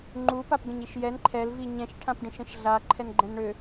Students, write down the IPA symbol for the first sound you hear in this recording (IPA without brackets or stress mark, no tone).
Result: ŋ͡ǃ